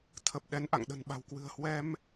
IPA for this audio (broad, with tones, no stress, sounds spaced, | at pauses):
t̪ʰ ə˨˩ p̚ ɗ ɛ˨˦ n ʔ a̰˧˨ ŋ ɗ ə̤˨˩ n ɓ a̤˨˩ w k w ɨ̤˨˩ ə̯ h w ɛ˧ m